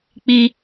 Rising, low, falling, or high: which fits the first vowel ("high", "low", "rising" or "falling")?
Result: high